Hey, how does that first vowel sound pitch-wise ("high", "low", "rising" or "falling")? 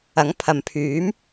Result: rising